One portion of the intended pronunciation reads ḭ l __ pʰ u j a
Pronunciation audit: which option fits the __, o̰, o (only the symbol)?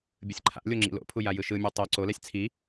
o̰